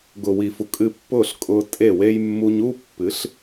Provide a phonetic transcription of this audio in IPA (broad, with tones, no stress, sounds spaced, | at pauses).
ɡ ʊ˨ w i˨ f u˨ kʼ ɨ˧ pː ʊː˦˨ ɬ kʼ ʊː˧ tʼ e˦˨ w e˧ j mː uː˧ ɲ uː˦ pː ɨ˨˦ ɬ